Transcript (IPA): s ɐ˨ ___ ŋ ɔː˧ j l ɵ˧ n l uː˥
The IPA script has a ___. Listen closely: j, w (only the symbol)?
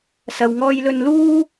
w